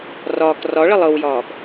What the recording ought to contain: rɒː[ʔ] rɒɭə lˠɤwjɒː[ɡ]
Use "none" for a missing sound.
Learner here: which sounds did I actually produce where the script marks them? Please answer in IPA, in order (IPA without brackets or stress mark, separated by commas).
k, ɡ